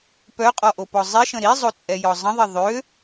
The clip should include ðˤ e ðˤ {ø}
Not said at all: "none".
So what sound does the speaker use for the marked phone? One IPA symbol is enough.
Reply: ø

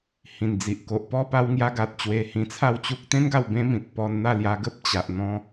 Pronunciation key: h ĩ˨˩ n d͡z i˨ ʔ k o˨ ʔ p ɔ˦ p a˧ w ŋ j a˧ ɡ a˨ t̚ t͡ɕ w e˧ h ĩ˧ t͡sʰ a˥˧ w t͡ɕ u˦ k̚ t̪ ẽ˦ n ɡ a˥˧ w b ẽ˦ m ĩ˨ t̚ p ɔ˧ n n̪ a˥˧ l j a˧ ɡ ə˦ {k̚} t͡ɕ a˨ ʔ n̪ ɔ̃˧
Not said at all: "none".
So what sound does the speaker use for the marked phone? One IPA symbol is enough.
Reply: p̚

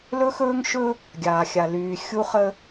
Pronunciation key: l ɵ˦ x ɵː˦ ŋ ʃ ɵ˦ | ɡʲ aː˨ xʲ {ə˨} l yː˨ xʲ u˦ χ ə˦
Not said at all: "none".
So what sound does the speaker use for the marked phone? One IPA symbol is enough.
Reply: a˨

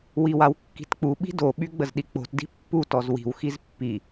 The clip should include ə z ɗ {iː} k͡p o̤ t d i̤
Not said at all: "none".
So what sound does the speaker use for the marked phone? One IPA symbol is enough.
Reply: i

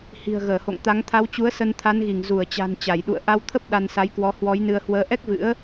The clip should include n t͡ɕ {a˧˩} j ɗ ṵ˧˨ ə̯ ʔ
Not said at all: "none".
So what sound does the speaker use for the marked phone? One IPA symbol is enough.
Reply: a˧˩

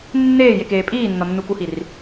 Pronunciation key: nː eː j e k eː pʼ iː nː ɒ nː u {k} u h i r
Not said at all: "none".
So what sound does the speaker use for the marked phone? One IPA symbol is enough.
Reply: k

